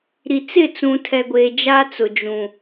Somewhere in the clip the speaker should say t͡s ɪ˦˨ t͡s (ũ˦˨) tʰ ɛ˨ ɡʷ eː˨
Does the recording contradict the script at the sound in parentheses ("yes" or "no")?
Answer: yes